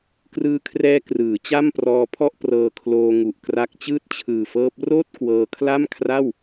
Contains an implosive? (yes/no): no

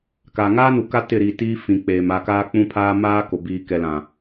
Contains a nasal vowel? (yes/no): yes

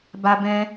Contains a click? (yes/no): no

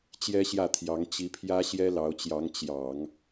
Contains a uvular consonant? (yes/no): no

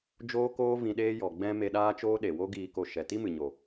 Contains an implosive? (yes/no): yes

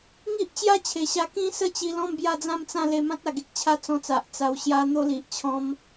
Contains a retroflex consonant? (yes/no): no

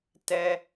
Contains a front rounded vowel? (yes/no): no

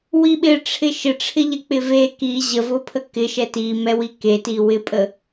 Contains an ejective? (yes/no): yes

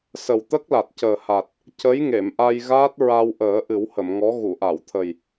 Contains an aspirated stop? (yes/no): yes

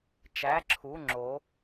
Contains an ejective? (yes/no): no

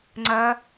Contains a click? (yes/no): yes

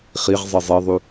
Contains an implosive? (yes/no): no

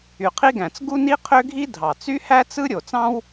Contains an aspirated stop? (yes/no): yes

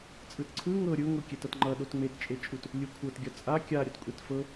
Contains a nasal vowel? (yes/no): no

